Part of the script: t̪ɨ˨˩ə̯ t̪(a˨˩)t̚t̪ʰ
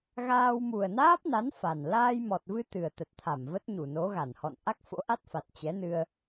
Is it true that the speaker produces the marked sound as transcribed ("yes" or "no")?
no